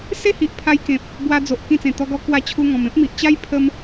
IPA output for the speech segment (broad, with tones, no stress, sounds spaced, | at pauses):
s e˦ h i˨ ʔ pʰ a˧ j k ẽ˨ p̚ | b w a˧ d͡z o˨ ʔ k ĩ˧ t͡s ẽ˨˩ t̪ ɔ˧ ɡ ɔ˧ k w a˥˧ t͡ɕʰ u˦ ŋ ɔ̃˧ m ẽ˦ p̚ m i˨ ʔ t͡ɕ a˦ j pʰ ə˦ m